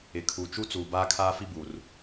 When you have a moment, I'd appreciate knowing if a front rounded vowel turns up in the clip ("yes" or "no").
no